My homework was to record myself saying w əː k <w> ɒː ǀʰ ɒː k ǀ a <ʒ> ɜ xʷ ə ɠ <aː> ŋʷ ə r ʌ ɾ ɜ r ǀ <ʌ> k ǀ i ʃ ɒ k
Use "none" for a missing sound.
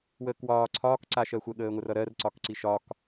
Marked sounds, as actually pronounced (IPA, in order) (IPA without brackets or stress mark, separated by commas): w, ʃ, əː, ɒ